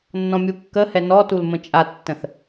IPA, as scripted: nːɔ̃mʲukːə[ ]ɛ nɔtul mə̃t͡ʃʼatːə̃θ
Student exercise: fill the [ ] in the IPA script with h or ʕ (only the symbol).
h